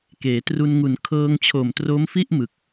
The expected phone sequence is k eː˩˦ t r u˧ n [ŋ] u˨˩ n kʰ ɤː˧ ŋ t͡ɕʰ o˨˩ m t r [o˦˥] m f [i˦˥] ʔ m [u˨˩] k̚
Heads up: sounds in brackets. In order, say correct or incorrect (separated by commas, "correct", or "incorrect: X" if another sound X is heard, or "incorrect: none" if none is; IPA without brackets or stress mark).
correct, correct, incorrect: i˥˩, incorrect: ɯ˨˩